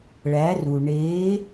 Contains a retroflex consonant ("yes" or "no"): yes